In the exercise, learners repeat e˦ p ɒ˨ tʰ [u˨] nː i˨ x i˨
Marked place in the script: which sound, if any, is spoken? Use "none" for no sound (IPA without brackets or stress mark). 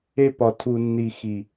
u˨